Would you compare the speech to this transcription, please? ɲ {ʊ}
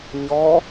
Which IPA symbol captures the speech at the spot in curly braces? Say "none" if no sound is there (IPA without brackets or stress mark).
ɔ